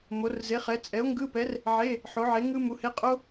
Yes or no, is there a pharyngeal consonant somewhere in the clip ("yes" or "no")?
yes